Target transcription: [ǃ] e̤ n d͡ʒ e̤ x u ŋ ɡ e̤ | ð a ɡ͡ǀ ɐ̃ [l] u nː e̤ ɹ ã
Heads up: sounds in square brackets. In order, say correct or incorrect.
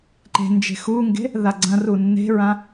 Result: correct, incorrect: r

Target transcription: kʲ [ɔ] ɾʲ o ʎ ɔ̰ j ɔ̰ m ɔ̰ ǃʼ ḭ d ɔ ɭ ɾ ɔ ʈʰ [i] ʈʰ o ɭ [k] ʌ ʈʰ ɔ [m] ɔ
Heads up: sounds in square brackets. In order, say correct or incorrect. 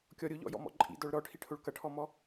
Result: correct, correct, correct, correct

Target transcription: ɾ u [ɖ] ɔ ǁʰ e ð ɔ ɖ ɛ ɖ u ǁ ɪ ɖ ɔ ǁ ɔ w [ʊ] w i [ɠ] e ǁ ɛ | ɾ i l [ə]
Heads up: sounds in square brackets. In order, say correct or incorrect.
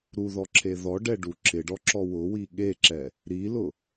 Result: incorrect: ð, correct, correct, incorrect: ʊ

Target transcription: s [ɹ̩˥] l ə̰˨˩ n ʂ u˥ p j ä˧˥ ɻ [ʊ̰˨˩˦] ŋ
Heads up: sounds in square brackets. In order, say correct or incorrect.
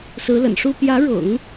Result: incorrect: ɹ̩˧˥, correct

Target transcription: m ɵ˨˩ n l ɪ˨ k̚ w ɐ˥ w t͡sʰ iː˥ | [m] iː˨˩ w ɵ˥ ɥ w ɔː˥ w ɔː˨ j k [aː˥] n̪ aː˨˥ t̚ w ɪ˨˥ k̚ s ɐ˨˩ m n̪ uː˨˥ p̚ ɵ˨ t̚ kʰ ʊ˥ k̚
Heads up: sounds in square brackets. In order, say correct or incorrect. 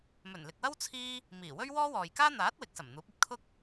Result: correct, correct

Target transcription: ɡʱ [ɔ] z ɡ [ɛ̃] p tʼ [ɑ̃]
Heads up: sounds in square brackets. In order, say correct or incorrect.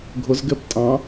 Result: incorrect: ʊ, incorrect: ɛ, correct

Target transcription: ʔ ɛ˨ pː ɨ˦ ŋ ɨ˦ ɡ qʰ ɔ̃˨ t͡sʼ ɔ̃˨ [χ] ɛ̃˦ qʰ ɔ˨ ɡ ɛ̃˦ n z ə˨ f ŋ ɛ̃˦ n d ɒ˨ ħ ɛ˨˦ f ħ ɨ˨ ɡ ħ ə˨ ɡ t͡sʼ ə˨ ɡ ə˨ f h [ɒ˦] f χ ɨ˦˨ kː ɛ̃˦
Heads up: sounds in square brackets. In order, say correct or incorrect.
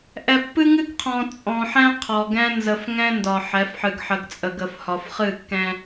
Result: incorrect: ħ, incorrect: ɒ˨

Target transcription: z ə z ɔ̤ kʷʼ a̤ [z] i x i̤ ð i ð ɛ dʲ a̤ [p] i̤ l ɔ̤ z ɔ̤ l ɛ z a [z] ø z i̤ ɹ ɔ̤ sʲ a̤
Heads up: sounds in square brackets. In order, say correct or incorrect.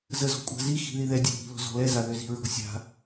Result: correct, correct, incorrect: ð

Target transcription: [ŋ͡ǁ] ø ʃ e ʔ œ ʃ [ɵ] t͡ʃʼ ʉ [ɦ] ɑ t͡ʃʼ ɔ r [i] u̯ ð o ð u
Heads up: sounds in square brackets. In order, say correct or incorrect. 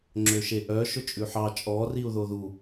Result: correct, correct, incorrect: ħ, correct

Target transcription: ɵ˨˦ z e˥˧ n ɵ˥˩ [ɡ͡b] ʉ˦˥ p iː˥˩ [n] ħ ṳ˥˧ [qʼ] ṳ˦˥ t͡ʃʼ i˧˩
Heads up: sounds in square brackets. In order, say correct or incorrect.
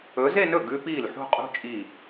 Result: incorrect: ɡ, incorrect: l, correct

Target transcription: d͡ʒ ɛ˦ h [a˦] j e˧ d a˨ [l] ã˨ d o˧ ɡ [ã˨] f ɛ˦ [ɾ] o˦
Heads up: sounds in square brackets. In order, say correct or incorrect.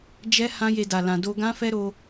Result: incorrect: ã˦, correct, incorrect: ã˦, correct

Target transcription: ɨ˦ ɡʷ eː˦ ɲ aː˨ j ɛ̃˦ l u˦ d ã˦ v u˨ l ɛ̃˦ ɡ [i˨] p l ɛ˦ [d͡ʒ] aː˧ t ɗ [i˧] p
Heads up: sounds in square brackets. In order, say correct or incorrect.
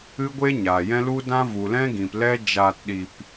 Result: incorrect: ĩ˨, correct, correct

